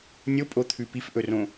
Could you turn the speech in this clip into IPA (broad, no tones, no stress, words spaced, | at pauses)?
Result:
nʲopʼot̪ʰʉ pifʔɵrõ